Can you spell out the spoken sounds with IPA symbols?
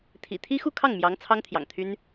t̪ʰ ḭ˨˩ t̪ʰ i˥ x u˥˧ kʰ ɑ˥˩ ŋ m j ɑ˧˥ ŋ t͡sʰ ɑ˥ ŋ t̪ʰ j ɑ̰˨˩ ŋ t̪ʰ y˥ n

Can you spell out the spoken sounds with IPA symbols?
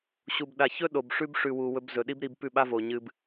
ɕ u˨ b ɗ a˨ ç ɵ˦ ɗ o˨ b ʂ ʉ˦ b ʂ ʉ˨ w u˨ w ɵ˧ b z ɵ˨ ɗ i˦ b ɾ i˧ b p ʉ˦˨ ɓ a˦ v o˨ ɲ ɨ˧ b

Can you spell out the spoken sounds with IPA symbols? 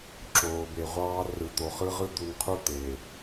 ǁ oː˨ b e˨ ʁʷ ɑː˦ r ɯ˨ t̪ o˨ χ ɯ˦ ʁ ɯ˦ d̪ u˨ n qʰ u˦ t̪ e˨

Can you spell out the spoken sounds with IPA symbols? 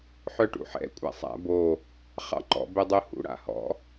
ħ œ ʈ ṵ ħ ɛ̰ kʷʼ a̰ sˤ a̰ b o | χ ɑ̰ ǃ ɔ̰ b ɛ dˤ o h ṵ ɽ a̰ h ɔ̰

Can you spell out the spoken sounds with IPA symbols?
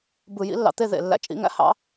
b ɯ˧˩˧ j ḭ˧˥ lː ɑ̰˧ t̪ e˥˧ ð ḛ˧˩˧ lː æ̰˧˥ t͡ʃʼ ḭ˧˥ ŋ æ̰˧ h ɑ̰˧˥

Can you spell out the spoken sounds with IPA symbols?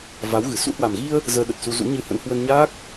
v a˨˦ w ɣ ɨ˧˩ s ṵ˧˥ h w a˨˩ m ɣ i˧ ə̯ | z əː˧ ɗ ə˨˩ t̚ s u˧ z ṵ˧˥ ɲ ɨ˧ h ə̰˧˥ n h w ə˧ n ɲ a˦˥ k̚

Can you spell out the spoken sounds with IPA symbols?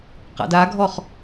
q a̰ d a ɡʱ ɔ χ

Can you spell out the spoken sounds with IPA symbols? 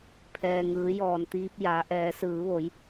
pʰ ɛː˩ ŋ ɯː˩˧ j ɔː˩ n t̪ iː˧ p̚ j a˩˧ ʔ ɛː˩˧ s ɯː˩˧ ʋ o˩˧ j

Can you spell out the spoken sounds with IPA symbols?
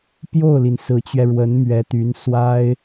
p j o˥˩ ʊ̯ l i˩ n s ɹ̩˧˥ t͡ɕ ɥ ɛ˧ ɻ w ə˧˥ n m ɥ ɛ˧˥ t̪ y˧˥ n s w a˥ ɪ̯

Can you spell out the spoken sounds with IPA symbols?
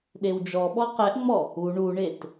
ɗ e w d͡ʒ ɔ ɓ ɔ q ɛ ʔ ŋ͡m ɔ | u ɳ u ɳ e t

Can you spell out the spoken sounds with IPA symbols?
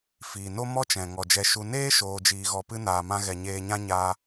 f iː˨ n o˦ m ɔ˦ t͡ʃ ɛ̃˨ ŋ ɔ˨ d͡ʒ ɛ˧ ʃ u˧ n eː˦ ʃ oː˧ d͡ʒ iː˧ ɣ ɔ˧ p ɨ˦ n aː˨ m ã˧ ɣ ɛ˨ ɲ eː˧ ɲ ã˦ ɲ aː˧

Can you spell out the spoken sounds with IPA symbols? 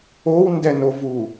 o w n d ɛ n o v u

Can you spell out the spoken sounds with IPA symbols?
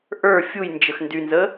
ʔ ə˞ fʲ u j n d͡ʒ ə x n d y n z ə

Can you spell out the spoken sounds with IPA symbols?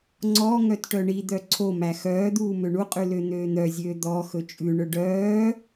ŋ͡ǀ ɔ ŋ œ t ʈ œ ɳ i d̪ œ ǀʰ o m æ x œː d̪ uː m ø ɳ u qʼ ʉ l ø n̪ øː n̪ œ zʲ øː d̪ ɔ x ɵ t͡ʃʼ ʉ ɳ ɵ ɖ œː

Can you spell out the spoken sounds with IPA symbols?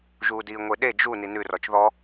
ʒ uː d iː ŋʷ e ɗ e d͡ʒ u n i n ʉ r ɔ t͡ʃ ð ɔ

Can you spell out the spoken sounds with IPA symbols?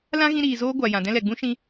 l ã˦ ɣ ĩ˧ ɾ iː˨ z oː˧ ɡʷ a˨ j ã˨ d ɛ̃˧ l ɛ˨ ɡ͡b ũ˦ ʃ ĩ˧

